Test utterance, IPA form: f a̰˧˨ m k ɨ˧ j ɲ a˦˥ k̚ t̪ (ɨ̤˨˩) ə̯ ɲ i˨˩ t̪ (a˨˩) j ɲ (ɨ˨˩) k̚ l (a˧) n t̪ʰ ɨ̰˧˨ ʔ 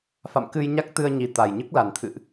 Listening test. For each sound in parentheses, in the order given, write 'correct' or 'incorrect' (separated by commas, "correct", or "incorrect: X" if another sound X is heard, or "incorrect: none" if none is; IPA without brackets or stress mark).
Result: incorrect: ɨ˧, correct, incorrect: ɨ˦˥, incorrect: a˨˩